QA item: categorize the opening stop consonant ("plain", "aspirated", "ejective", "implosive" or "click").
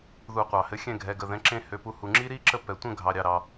plain